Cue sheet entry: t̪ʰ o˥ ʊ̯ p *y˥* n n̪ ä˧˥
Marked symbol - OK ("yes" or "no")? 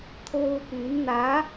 no